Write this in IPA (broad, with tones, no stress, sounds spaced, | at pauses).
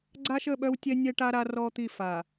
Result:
ɡ͡ǀ a˦ ʃ ə˦˨ ɓ œ˦ w tʲ ɛ˦ nʲ ɛ˦ ʈ a˦ ɾ a˦ r ɔ˦ t̪ i˦˨ f a˨